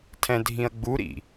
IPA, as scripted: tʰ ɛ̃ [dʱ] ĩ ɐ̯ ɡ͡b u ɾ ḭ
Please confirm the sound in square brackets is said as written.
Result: yes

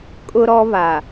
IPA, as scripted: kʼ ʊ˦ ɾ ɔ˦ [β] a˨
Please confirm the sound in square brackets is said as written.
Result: yes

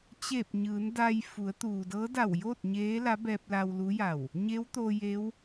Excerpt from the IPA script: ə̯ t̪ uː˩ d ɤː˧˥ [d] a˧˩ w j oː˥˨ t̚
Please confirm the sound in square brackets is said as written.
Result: yes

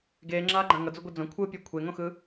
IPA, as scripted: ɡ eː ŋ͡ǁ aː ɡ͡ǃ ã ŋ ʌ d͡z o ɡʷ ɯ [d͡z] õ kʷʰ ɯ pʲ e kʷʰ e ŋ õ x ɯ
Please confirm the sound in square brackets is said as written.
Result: yes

